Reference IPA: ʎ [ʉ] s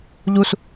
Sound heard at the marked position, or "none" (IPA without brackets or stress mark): u